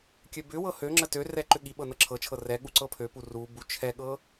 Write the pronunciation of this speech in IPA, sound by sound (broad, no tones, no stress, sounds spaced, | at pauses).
kʲ ø b ʏ w ɤ h ø ŋ͡ǁ ə t ø r ɛ ǃ ʏ ɠ i ɓ ɤ n ɤ ǁʰ ɤ t͡ʃʰ ɤ r ɛ ɠ u ǀ ɤ pʰ ø p u r u b u t͡ʃʰ ɛ ɠ ɤ